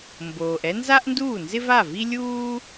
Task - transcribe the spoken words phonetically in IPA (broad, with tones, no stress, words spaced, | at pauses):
mboː˩ʔɛ˥nza˥ʔnduː˥˩ nzɪ˥va˥˩vi˥lʲuː˥